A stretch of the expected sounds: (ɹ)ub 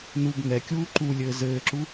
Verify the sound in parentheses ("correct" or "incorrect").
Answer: incorrect